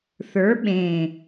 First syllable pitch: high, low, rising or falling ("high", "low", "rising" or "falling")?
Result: rising